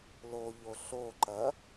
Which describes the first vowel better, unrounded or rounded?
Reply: rounded